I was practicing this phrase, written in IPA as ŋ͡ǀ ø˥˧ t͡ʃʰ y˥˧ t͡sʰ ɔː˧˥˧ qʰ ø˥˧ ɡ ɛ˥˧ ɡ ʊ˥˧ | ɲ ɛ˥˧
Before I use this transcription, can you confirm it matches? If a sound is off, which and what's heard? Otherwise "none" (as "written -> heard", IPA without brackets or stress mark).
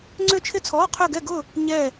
y˥˧ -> ɪ˥˧